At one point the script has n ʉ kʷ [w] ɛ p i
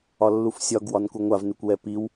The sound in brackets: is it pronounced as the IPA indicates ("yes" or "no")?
yes